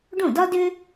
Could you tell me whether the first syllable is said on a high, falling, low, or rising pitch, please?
falling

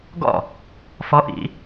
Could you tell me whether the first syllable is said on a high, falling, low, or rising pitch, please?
falling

